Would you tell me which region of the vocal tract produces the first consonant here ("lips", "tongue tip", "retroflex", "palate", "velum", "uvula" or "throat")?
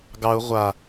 velum